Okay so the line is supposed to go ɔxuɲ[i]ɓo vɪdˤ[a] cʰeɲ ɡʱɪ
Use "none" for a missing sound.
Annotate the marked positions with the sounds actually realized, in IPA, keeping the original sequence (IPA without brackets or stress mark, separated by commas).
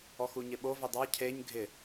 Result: ɪ, a